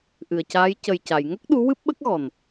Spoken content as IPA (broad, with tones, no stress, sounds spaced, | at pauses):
ʔ ɨ˨˩ ə̯ c aː˧˥ j c ə˨˩ j c a˨˩˨ j ŋ ə˦˥ k̚ ɗ u˧˥ w ɨ˦˥ p̚ ɓ ə˦˥ k̚ ɣ ɔ˨˩ n